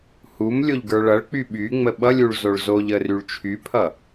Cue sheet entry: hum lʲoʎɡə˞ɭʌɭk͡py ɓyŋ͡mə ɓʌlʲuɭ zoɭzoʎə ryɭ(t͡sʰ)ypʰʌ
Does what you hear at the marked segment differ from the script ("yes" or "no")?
yes